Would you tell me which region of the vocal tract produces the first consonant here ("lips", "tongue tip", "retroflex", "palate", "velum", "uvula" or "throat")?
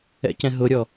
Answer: palate